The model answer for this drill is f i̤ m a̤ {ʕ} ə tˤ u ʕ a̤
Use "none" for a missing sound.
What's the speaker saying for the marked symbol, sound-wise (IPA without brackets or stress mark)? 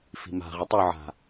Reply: ʁ